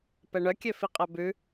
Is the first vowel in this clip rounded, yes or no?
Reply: no